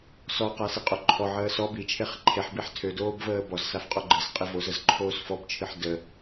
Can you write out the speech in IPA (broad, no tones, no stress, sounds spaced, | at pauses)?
s ɔ q a s i qʼ o ǃʰ ɔ ʕ əː s ɔ b i t͡ʃʰ e χ ǃʰ e ħ b i ħ tʰ ø d oː b v əː b ɔ z s a f qʼ ɔ ɡ͡ǃ ɨ s qʼ i v o z ə z ǃʰ oː s f ɔ b t͡ʃʰ ɨ ħ d ə